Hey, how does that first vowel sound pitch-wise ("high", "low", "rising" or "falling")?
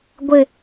low